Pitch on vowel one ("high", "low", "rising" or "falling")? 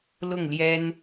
falling